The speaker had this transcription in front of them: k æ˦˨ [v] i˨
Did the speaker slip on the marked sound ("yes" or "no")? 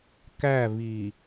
no